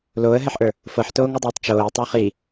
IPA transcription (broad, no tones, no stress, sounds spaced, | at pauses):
l oː ə̯ ɦ ɛ ħ ʔ ə˞ | f ɤ ħ t oː ŋ o dˤ oː tˤ t͡ʃ oː ə̯ tˤ ə˞ χ i